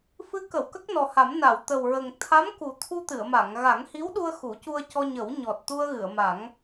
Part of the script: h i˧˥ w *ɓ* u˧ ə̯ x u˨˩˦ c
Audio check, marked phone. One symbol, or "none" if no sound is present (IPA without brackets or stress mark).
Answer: ɗ